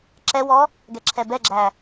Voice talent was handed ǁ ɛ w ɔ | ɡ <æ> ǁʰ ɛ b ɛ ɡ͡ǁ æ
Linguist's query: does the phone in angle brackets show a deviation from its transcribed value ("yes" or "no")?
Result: yes